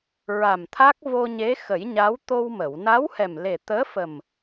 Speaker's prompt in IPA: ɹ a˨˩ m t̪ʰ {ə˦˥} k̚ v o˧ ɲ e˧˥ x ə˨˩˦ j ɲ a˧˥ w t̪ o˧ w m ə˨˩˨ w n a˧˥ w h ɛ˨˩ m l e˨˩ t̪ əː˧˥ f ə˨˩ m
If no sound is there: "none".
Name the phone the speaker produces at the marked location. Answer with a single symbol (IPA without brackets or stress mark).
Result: a˦˥